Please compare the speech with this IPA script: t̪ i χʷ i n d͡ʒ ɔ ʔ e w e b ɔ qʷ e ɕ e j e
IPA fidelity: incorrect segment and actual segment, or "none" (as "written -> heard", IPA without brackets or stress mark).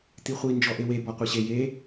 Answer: none